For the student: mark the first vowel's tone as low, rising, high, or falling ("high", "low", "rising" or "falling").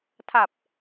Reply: low